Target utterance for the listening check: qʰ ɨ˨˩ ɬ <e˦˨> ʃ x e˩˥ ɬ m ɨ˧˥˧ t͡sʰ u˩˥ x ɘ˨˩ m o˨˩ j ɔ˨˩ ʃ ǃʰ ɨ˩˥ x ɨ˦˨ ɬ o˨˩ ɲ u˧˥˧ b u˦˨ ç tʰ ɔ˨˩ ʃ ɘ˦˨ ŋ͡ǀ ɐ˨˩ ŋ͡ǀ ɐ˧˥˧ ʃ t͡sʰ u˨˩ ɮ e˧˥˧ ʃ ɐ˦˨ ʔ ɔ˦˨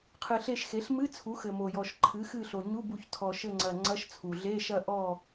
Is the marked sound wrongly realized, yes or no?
no